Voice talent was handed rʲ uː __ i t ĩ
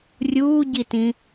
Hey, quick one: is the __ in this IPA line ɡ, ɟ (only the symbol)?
ɟ